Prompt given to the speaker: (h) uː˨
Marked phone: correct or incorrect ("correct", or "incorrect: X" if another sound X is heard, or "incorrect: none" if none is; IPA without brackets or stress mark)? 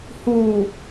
correct